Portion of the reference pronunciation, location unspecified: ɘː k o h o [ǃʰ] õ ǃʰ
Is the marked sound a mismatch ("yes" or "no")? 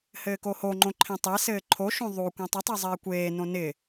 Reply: yes